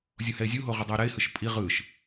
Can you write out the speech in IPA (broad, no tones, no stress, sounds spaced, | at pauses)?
zʲ o h ɛ ɪ̯ zʲ u ɦ o ʁ o dˤ ɤ ʊ̯ ɾ ɛ ɪ̯ h ɯ ʃ pʼ i ʁ ɯ ʃ